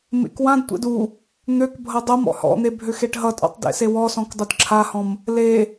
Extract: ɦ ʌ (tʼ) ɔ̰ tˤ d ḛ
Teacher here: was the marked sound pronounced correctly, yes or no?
yes